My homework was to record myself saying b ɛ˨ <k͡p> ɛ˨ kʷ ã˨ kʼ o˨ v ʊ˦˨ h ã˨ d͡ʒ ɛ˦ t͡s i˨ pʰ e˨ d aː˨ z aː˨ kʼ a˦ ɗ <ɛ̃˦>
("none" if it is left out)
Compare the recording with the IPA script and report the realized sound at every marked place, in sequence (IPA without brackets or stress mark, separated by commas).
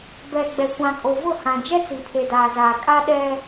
ɡ͡b, ɛ˦